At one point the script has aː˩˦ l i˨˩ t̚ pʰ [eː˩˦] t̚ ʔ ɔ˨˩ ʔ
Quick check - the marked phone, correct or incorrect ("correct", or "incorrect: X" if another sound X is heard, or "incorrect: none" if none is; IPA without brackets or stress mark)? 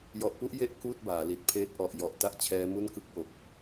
incorrect: eː˦˥